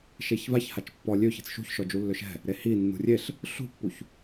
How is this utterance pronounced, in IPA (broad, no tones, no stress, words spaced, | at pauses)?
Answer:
ʃeçvaç hat͡ʃpːɔ lʲø çe̤t͡sʃṳçʃɔ d͡ʒulːøʃɛ̤ | ɾehi nːṳrʲeɬ | ɬṳpːuç